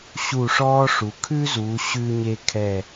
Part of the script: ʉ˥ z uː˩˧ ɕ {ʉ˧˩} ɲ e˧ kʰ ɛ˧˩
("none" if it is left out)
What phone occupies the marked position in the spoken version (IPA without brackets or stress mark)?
ʉ˧